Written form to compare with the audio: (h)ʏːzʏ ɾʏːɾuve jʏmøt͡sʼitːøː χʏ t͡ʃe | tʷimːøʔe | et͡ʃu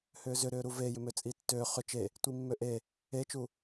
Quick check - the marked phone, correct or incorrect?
correct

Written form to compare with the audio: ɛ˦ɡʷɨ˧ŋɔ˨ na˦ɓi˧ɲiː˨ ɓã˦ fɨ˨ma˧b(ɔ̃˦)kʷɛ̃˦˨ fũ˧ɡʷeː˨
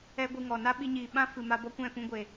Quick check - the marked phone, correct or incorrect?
incorrect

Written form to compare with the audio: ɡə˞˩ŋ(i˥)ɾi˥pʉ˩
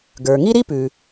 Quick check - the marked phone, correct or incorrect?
correct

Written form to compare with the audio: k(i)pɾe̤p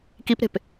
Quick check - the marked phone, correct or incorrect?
correct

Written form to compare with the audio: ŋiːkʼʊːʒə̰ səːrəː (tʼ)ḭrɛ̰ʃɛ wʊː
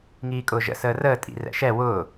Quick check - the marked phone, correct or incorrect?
correct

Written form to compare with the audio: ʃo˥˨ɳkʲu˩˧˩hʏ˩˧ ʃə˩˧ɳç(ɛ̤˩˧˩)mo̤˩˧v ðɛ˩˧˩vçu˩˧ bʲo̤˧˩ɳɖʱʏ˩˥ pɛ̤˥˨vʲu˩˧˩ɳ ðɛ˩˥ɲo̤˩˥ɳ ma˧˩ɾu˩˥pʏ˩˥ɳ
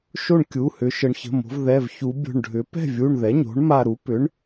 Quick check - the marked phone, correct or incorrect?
incorrect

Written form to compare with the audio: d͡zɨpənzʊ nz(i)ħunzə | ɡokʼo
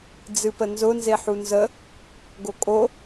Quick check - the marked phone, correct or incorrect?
incorrect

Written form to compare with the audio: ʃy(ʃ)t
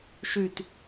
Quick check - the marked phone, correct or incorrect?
incorrect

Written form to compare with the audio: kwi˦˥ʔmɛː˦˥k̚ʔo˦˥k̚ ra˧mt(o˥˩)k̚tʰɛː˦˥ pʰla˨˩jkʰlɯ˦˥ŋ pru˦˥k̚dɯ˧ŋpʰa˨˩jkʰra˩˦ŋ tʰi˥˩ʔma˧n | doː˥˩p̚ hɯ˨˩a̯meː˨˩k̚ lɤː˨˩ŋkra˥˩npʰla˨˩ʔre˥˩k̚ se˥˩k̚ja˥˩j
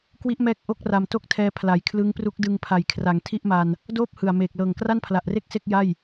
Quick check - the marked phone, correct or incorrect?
correct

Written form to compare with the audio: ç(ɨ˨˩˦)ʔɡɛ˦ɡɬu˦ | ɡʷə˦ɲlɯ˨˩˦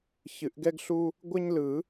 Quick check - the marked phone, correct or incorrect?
correct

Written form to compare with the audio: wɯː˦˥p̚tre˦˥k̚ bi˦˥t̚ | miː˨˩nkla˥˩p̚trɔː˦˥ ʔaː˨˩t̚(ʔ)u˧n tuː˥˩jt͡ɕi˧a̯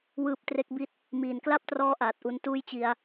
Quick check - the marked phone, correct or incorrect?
correct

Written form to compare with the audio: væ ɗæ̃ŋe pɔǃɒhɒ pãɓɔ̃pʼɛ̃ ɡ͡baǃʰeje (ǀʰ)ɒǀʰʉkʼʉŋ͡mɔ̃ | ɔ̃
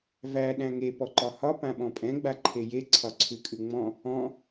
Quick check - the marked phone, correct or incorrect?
correct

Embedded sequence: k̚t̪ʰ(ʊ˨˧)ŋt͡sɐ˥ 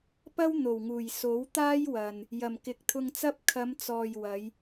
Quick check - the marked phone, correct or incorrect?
incorrect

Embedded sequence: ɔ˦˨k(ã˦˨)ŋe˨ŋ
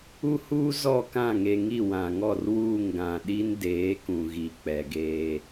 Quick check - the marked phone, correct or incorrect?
correct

